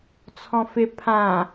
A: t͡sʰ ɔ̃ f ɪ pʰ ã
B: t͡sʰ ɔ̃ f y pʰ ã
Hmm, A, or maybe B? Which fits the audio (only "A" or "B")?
A